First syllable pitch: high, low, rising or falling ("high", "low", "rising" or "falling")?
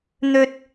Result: high